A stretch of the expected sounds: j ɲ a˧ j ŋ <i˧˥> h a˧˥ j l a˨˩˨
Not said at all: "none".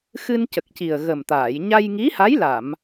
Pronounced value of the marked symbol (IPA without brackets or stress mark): i˧˥